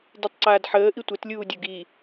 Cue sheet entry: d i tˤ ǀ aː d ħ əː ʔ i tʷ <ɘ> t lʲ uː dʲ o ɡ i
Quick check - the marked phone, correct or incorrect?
correct